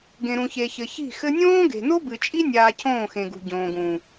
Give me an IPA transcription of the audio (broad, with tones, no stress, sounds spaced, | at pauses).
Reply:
ɡ ẽ˨ ɾ ũ˨ ç e˨ ç ɘ˨ ç i̤˦˨ x ɘ˧ nʲ õː˦ ɡ e̤˨ n o˦ b ɨ˨ t͡ʃʼ i˦ nʲ aː˧ cʰ õː˦˨ x ẽ˨ ɡ ṳ˨ ɟ õː˨ ɡ ũ˨